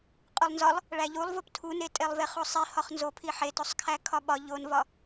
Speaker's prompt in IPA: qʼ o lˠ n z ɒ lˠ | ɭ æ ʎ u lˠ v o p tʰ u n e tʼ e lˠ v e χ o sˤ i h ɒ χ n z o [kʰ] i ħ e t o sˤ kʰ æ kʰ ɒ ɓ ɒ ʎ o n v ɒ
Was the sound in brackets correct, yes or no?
no